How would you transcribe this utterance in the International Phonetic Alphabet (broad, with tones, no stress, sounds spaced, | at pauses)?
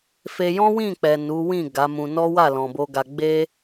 f e˧ j ɔ̃˦ w ĩ˦˨ k͡p ɛ˨ n u˨˦ w ĩ˦˨ ɡ a˨˦ m ũ˧ n ɔ˦ w a˦˨ l ɔ̃˨ b o˧ ɡ a˧ ɡ͡b e˦